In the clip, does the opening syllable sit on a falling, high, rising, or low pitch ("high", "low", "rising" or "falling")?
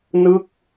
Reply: falling